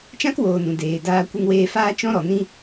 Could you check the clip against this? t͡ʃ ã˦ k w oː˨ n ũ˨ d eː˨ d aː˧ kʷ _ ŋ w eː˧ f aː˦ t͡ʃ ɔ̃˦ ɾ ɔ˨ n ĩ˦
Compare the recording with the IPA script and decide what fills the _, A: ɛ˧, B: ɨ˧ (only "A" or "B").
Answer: B